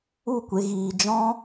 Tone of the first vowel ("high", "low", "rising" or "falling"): falling